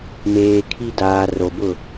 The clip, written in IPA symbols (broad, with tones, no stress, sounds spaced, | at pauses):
m eː˨ kʰ i˦ d aː˨ r o˨ b ʊ˦˨